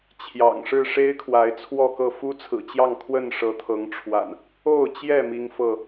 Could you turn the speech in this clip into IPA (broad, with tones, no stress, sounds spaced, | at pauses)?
t͡ɕʰ j ɑ̰˨˩ ŋ ʂ ɻ̩˥˨ ʂ e˦ ɪ̯ kʰ w a˨˦ ɪ̯ t͡sʰ w ɔ˥˨ k ɤ˥˨ f u˦ t͡sʰ ɹ̩˨˩ t͡ɕ j ɑ˥˨ ŋ kʰ w ə˥˨ n ʂ ɤ˨˦ t̪ʰ ɤ˨˦ ŋ ʈ͡ʂʰ w a̰˨˩ n | o˥˨ ʊ̯ t͡ɕ j ɛ˥˨ m i˦ ŋ f ɤ˥˨